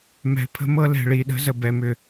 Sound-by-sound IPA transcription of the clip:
m ɛ̤˨ pʰ ə̤˦ m ɤ˦ l ɛ̤˨ ɭ i˨ ɗ ə̤˦ z ə˨ b ɛ˨ m ʏ˨

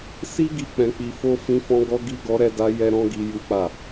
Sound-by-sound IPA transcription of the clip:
s i˦ ɡ i˧ k͡p ɛ̃˧ k͡p i˧ f o˦ f ĩ˧ f ɔ̃˧ ɡ ɔ˧ ɡ i˧ ɡ ɔ˧ ɾ ɛ˧ d a˧ j ɛ˦ ɾ ɔ̃˦ ɡ i˧ j u˦ k͡p a˦˨

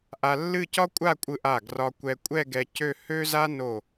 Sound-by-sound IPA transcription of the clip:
ʔ a˧ lː ɨ˥˧ c ɒ˥ kʷʼ a˥˧ kʷʼ ɯ˧ ʔ a˧˩ ɡ r ɒ˧ kʷ ɛ˧ kʷʼ ɛ˥˧ ɡ ɛ˧ c ø˥˧ h ø˥ z a˥ n o˧˩

